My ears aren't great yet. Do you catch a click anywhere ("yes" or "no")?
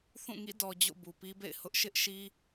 no